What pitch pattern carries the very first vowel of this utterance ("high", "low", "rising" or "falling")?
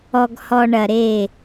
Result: low